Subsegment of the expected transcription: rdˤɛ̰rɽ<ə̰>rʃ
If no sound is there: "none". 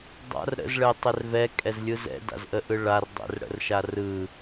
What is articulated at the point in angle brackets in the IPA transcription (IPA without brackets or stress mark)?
ə̰